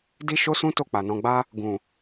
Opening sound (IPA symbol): d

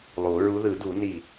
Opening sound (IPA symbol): lˠ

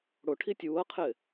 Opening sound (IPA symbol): ɽ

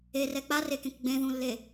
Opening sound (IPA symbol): e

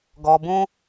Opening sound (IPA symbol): ɡ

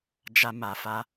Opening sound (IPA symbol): d͡ʒ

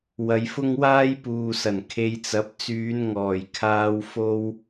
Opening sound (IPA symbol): w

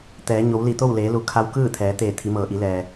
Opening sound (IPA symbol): t̪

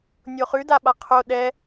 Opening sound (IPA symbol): nʲ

